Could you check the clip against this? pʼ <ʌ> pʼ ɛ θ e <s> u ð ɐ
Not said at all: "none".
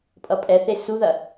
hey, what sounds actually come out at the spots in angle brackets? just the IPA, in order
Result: ʌ, s

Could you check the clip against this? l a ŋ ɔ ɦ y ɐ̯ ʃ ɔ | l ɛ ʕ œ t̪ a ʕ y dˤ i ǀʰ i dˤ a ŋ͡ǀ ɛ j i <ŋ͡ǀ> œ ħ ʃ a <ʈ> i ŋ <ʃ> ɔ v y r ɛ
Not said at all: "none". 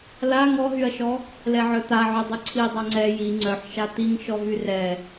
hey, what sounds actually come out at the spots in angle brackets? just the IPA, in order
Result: ŋ͡ǀ, t̪, ʃ

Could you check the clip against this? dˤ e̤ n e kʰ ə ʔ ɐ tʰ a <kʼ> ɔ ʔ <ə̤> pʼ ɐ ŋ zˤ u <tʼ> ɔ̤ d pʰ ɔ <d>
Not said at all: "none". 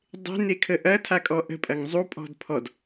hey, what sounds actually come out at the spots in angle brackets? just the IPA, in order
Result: kʼ, ə̤, pʼ, d

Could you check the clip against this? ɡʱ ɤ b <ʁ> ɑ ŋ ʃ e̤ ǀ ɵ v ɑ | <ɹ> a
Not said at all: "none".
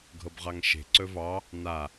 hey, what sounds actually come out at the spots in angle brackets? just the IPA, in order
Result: ʁ, n

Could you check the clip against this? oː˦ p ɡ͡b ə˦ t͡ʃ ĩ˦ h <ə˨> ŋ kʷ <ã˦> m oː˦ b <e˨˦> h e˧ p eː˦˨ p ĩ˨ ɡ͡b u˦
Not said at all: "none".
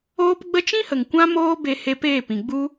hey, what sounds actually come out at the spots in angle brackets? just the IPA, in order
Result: ə˨, ã˦, e˧

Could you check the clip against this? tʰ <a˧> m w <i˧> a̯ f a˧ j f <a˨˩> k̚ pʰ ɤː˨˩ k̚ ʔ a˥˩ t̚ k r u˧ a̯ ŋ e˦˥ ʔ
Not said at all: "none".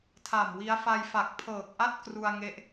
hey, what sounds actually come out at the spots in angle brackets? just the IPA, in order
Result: a˨˩, i˦˥, a˨˩

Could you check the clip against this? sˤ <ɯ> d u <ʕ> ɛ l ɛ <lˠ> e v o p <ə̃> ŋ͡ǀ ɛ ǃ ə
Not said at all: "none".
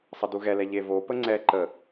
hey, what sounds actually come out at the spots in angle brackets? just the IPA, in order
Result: ə, ɣ, ʎ, ə

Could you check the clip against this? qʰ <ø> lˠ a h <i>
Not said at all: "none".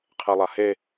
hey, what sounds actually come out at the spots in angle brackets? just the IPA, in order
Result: ɛ, e

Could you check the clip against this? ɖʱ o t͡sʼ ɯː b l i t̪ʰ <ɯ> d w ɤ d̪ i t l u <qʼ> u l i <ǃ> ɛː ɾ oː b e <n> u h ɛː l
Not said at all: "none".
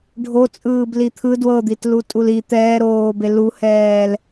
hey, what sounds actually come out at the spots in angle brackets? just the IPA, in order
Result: ɯ, tʼ, t̪, l

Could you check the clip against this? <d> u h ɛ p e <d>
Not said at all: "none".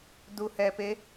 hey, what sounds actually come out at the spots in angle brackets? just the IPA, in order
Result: d, none

